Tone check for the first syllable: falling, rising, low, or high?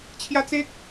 high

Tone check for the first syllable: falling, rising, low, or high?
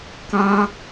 high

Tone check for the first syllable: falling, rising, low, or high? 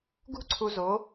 falling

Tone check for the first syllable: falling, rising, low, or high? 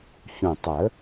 low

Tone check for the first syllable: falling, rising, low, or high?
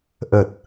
low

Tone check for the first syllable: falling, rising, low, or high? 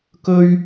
high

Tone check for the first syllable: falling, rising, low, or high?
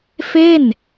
falling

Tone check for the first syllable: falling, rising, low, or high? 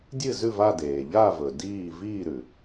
falling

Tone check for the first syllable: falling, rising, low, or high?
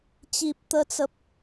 low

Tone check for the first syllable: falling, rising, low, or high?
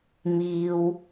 low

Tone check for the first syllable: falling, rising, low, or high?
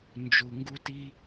low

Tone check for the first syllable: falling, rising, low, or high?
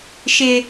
high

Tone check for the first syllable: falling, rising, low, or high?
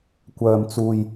low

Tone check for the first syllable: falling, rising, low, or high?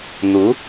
rising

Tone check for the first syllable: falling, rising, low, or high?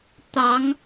rising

